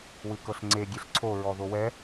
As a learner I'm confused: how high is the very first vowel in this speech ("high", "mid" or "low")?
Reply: high